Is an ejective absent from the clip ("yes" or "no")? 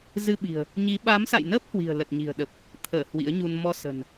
yes